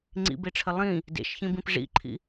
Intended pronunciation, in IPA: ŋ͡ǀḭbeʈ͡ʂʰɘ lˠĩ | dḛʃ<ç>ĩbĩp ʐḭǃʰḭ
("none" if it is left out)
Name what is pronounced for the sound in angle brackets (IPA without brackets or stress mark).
ç